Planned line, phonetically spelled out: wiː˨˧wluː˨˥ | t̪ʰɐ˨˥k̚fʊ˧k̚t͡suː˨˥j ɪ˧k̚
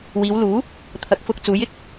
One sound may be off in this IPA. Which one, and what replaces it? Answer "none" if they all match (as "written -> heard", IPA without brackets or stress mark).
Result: none